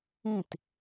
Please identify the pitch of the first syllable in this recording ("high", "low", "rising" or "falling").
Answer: falling